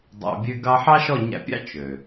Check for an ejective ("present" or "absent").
absent